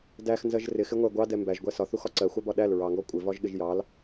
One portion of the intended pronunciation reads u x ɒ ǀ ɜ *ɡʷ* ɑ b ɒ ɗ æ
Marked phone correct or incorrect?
incorrect